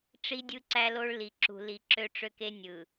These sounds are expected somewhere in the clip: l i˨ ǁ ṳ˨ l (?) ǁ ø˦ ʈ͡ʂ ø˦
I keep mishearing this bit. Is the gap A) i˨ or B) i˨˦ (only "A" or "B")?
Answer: B